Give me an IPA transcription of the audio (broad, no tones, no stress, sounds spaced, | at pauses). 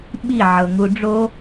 ɓ i ʕ ɤ ŋ u ɖ͡ʐ o